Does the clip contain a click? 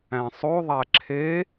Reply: yes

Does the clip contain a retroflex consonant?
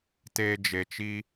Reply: no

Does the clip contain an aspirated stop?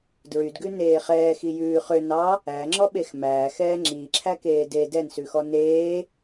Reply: yes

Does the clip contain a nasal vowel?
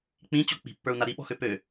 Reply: yes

